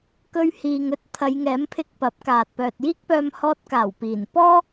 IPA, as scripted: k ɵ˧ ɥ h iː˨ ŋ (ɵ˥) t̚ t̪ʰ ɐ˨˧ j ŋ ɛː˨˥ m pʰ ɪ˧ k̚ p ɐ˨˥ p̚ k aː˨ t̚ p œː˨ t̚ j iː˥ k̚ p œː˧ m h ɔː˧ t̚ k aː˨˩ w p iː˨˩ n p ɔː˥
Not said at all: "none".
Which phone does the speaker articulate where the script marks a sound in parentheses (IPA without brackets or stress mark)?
ɵ˥